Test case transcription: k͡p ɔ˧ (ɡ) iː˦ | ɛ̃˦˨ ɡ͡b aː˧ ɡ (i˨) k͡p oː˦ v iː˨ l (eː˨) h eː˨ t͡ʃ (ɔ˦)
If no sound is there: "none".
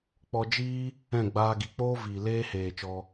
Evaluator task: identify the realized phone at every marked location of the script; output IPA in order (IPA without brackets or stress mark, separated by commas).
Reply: d͡ʒ, i˨, eː˧, ɔ˧